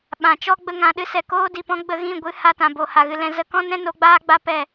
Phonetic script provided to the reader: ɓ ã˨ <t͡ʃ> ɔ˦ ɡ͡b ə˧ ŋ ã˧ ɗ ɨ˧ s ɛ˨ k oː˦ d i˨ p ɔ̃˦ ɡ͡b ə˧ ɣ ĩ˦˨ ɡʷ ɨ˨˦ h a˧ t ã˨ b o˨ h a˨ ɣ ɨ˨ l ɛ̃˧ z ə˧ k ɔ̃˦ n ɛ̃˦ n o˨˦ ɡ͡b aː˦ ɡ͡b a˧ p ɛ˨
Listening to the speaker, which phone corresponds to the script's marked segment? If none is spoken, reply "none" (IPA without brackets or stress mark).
t͡ʃ